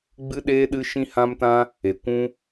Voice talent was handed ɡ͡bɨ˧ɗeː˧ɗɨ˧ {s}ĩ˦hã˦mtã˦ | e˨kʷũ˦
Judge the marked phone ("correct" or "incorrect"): incorrect